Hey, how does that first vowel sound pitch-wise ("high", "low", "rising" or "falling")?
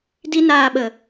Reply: high